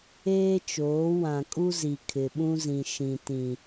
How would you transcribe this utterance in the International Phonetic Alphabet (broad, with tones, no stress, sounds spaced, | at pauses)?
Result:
eː˦ t͡ʃ oː˨˦ w ã˨ kʼ u˦ z i˨ kʰ ɪ˨ ɓ ũ˦ z ĩ˨ ʃ ĩ˨ t ĩ˨